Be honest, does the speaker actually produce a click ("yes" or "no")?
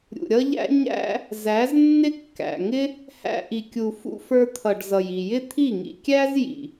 no